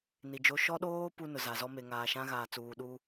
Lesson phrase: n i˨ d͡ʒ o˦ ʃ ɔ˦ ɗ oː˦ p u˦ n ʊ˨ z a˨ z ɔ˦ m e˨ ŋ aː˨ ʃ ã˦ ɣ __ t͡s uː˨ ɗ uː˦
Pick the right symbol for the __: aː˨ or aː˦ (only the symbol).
aː˨